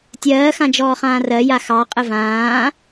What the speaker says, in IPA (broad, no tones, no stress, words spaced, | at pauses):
tʲɜːxãd͡ʒɔːχãː rɜja xɑqʼə vãː